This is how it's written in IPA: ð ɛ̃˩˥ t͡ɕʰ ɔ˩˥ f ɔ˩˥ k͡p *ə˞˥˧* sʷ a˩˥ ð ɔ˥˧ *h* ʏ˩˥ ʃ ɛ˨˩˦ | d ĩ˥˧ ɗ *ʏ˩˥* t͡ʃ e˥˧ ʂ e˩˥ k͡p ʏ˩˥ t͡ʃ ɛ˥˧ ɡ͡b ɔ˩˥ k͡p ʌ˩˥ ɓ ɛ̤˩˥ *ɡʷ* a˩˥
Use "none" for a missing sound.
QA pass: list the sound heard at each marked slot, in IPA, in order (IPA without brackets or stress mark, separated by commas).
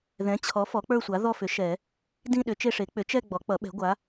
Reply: ə˞˥˧, f, ʏ˩˥, ɡʷ